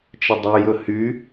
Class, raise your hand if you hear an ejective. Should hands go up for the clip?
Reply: no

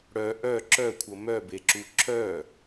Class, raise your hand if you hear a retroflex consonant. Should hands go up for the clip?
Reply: yes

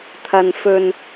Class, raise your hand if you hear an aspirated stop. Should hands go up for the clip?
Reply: yes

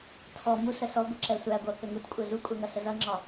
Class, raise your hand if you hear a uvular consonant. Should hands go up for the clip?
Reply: no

